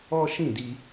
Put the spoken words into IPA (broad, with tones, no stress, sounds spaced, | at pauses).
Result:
ɔ˦ ʃ ĩ˦˨ d i˧